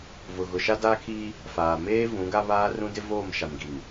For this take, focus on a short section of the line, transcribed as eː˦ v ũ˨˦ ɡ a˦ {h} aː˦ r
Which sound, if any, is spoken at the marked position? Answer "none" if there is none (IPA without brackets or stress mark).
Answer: β